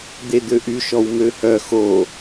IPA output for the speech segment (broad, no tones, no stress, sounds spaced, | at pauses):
d̪ e d̪ ø ʔ y ʃ ɔ w m ø h œ x o